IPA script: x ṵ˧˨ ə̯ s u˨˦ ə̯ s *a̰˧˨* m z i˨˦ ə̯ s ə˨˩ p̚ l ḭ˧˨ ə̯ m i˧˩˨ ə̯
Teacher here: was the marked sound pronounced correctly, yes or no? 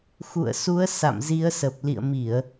yes